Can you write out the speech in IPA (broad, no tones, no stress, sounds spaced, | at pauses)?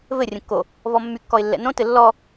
v ɘ rʲ ə̃ kː o | v ɔ mː y kː ɔ ɪ̯ lː ɛ̰ n õ t ɘ lː ɔ